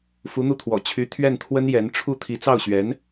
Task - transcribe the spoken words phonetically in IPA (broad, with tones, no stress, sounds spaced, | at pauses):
f u˧˥ n̪ u˥˩ t̪ʰ w ɔ̰˨˩ t͡ɕʰ y˧˥ t̪ʰ ɥ ɛ˥˩ n t̪ʰ w ə˥ n j ɛ˧˥ n ʈ͡ʂʰ u˥˩ t̪ʰ i˧˥ t͡s ɑ˥˩ ʊ̯ ɕ ɥ ɛ˧˥ n